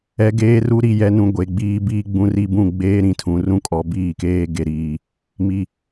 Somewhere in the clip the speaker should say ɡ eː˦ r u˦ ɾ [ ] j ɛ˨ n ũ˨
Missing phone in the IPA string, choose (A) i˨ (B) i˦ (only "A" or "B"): A